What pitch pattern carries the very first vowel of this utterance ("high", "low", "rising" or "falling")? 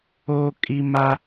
high